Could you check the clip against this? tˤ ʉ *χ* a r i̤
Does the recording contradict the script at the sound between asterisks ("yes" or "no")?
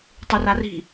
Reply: yes